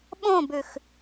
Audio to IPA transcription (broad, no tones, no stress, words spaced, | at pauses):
ɓõbʉx